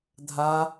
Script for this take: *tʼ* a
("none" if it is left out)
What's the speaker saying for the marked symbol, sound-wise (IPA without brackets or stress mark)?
dʱ